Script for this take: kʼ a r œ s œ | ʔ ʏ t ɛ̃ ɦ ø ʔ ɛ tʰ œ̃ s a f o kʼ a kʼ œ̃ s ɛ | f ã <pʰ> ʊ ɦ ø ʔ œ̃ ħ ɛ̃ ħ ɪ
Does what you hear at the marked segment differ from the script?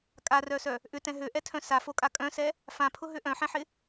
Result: no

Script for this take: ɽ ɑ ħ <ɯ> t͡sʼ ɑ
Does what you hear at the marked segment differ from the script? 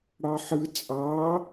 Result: no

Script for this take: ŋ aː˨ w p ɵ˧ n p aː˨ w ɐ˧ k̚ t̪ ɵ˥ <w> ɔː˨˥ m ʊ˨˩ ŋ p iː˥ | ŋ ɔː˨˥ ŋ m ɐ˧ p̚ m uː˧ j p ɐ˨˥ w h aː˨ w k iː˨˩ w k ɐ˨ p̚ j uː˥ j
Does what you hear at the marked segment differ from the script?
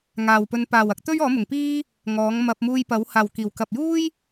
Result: yes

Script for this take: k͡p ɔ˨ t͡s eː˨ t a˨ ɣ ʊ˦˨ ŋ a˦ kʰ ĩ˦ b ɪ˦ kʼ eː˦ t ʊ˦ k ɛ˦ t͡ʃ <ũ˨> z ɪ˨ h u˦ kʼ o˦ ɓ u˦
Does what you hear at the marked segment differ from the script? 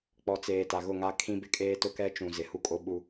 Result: no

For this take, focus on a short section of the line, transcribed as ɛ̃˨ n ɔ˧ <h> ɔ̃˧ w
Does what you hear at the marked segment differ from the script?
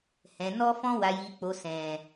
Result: yes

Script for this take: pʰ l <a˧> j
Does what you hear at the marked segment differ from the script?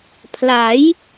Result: yes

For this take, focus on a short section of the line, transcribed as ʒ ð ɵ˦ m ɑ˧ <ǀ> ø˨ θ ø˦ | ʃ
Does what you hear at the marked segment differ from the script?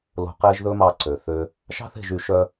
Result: no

